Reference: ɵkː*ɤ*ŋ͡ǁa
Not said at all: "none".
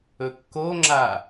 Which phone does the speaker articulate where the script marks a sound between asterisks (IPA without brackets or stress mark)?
o